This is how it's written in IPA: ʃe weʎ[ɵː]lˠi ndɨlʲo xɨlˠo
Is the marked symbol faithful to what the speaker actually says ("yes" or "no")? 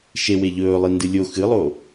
yes